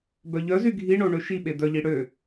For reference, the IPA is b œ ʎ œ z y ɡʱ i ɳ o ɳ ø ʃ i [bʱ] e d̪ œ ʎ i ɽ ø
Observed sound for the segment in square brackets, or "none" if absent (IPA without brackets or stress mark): ɓ